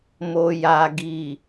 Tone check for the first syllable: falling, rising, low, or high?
low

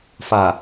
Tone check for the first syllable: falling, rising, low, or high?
low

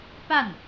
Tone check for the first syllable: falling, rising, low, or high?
falling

